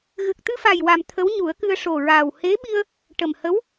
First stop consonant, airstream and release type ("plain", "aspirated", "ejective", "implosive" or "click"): plain